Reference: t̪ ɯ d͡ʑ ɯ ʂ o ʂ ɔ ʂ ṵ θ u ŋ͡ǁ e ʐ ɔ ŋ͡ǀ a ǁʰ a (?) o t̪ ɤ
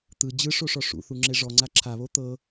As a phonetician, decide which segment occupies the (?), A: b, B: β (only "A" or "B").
B